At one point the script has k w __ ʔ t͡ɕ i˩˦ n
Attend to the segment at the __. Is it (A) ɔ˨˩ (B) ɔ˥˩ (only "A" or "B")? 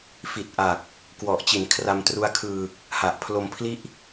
A